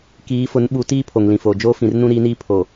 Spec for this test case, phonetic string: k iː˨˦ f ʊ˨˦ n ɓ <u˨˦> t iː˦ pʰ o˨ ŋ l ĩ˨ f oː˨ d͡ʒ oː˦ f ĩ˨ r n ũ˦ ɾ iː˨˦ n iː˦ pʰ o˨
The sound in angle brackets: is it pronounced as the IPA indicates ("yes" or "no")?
yes